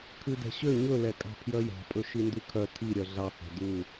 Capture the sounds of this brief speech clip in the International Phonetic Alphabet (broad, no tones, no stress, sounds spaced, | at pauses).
kʰ ʉ d ɛ̤ ɕ ø ɲ ɵ l ɛ kʼ ɑ̤ pʰ j œ j ɑ̤ pʼ ɵ ʃ i n d ʉ kʰ œ tʰ i ɾʲ œ ɮ ɑ h ɛ̤ d u